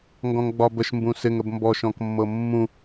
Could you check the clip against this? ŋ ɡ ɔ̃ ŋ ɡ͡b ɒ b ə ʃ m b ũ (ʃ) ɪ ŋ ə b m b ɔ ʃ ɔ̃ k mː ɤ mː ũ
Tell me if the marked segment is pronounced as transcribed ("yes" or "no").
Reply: no